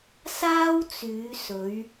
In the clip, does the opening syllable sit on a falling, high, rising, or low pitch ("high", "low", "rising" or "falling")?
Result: high